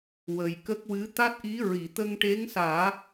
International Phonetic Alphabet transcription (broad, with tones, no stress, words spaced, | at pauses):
wə˨˩jkə˦˥k̚wɨ˧˥ t̪a˦˥t̚ʔi˧˥ ɹi˨˩˨t̪ə˧ŋʈe˧˥ŋsaː˨˩˦